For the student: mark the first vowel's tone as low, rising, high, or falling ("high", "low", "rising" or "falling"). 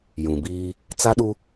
low